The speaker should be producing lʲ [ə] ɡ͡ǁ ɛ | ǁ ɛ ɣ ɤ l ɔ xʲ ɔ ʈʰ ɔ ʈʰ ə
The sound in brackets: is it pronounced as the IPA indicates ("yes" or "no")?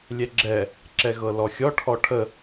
no